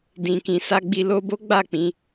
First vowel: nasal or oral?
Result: nasal